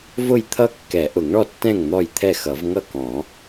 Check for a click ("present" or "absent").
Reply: absent